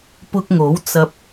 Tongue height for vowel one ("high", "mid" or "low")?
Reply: high